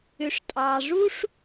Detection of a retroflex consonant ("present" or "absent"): present